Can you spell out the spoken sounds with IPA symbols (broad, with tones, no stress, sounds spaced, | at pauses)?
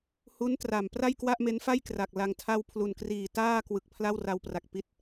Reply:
h u˦˥ n t r a˨˩ m p r a˥˩ j k w a˥˩ ʔ m e˦˥ n f a˥˩ j k r a˨˩ k̚ l a˧ ŋ tʰ a˥˩ w pʰ l u˨˩ n k r iː˨˩ t aː˥˩ k w ɯ˨˩ k̚ pʰ l a˥˩ w r a˧ w p r a˨˩ k̚ p i˦˥ t̚